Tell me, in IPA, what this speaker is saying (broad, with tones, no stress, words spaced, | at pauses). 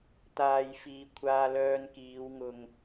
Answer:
t̪aː˧jfiː˧ kʷʰaː˧lœː˧nkiː˨˧w ŋʊ˨ŋ